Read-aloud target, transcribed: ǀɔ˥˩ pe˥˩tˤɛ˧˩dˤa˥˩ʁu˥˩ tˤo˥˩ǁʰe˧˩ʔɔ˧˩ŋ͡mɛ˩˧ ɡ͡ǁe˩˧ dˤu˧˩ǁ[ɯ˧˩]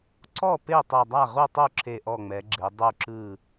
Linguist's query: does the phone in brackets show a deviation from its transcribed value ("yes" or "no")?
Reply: no